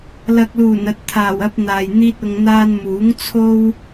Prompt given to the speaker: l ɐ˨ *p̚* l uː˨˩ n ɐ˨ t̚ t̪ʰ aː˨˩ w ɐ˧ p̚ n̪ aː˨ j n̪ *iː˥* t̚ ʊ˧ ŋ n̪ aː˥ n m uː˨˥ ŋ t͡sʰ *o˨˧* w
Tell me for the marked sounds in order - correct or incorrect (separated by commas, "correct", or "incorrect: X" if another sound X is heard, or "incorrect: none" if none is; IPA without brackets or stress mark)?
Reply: incorrect: k̚, correct, incorrect: o˥